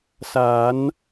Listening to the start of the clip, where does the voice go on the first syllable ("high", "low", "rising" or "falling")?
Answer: rising